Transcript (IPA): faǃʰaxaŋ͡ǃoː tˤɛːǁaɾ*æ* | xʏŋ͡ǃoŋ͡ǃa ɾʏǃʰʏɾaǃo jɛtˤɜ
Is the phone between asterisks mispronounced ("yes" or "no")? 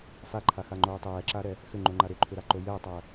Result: yes